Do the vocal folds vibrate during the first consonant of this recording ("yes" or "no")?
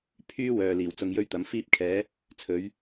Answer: no